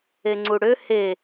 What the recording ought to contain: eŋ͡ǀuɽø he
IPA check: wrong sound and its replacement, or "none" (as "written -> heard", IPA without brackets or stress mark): none